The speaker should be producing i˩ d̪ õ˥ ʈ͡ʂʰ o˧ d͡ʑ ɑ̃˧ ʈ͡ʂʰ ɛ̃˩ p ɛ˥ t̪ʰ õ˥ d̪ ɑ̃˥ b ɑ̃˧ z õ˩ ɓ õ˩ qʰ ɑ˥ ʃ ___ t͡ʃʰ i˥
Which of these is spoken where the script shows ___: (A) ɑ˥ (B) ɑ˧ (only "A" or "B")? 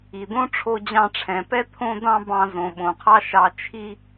B